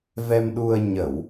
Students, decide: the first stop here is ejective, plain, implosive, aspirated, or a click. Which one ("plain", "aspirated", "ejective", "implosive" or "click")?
implosive